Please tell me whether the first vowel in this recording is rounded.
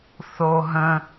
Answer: yes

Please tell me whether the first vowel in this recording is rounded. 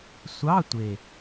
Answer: no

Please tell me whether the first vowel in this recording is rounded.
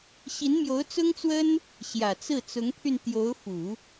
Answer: no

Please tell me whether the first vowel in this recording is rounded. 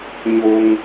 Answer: yes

